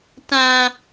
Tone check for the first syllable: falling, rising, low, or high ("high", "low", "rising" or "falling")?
high